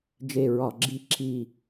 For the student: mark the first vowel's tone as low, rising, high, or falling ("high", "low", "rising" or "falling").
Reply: falling